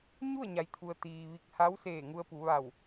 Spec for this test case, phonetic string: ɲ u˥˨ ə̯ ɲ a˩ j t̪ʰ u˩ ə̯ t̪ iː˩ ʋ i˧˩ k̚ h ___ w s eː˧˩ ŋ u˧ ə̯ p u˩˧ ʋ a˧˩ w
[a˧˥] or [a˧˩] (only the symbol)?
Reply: a˧˥